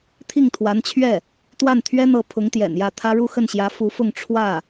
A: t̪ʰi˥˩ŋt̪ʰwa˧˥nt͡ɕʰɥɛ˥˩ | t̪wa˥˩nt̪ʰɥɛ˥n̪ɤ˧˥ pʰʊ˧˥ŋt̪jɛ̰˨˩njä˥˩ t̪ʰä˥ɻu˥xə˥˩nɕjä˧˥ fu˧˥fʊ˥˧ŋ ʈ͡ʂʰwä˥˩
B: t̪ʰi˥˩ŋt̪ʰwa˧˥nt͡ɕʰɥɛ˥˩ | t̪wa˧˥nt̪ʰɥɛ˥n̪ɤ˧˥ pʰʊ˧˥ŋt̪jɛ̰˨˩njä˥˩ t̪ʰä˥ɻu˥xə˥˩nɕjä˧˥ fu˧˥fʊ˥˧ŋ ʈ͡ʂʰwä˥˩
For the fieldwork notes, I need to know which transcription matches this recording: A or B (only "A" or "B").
A